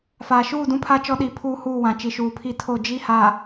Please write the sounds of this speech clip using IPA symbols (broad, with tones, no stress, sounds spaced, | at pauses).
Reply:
f aː˨ ʃ uː˦˨ d ũ˦ pʰ a˦ t͡ʃ ɔ˦ ɗ i˨˦ pʰ uː˦ h uː˦˨ w ã˨ t͡ʃ i˨ ʃ uː˨ pʰ i˦ tʰ o˦˨ d͡ʒ i˦ h aː˨